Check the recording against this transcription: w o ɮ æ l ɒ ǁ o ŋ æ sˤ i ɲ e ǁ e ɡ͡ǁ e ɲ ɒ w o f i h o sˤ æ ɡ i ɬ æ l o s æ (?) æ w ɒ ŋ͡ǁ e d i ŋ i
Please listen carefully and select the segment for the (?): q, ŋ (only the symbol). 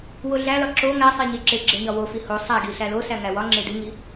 ŋ